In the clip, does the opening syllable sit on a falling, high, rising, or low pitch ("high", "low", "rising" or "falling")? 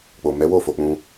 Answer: low